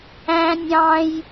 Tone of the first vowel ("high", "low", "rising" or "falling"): high